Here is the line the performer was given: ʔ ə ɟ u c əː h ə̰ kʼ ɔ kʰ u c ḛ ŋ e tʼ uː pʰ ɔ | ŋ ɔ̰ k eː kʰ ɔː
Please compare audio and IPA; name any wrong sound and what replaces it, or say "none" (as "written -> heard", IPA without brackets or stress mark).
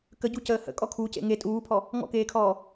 ʔ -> k